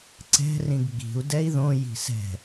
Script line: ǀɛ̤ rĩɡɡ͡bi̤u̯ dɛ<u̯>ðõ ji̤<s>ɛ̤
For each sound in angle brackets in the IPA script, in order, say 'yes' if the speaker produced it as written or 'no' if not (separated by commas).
no, yes